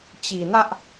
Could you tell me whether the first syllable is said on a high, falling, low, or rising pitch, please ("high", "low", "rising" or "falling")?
low